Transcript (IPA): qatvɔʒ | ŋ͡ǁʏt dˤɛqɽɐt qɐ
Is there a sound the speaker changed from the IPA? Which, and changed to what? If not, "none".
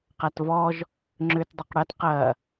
none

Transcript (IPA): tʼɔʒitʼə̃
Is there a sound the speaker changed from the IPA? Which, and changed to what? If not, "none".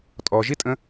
none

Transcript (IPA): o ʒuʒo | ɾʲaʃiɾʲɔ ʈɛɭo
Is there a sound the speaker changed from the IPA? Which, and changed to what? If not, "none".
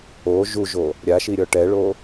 none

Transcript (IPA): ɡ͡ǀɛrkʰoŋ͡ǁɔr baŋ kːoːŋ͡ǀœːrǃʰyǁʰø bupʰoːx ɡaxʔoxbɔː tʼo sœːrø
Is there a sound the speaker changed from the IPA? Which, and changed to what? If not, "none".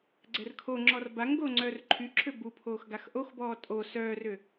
kː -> ɡ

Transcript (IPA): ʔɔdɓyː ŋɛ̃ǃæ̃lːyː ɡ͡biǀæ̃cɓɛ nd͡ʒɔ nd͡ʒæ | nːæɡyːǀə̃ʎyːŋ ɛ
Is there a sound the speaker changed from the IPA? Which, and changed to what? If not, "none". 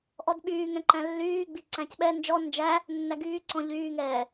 ə̃ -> ɔ̃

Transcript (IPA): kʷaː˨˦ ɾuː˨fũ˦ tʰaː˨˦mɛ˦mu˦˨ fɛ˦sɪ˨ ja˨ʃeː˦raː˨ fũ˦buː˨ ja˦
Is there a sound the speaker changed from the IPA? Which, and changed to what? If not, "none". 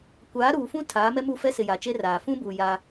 ʃ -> t͡ʃ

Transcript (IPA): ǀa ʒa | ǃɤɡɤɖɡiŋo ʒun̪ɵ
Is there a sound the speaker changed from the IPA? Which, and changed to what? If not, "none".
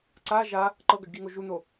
ɵ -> o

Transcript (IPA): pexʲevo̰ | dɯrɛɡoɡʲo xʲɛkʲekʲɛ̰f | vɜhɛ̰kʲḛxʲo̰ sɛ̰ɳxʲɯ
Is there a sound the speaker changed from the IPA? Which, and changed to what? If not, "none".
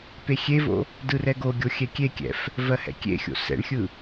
none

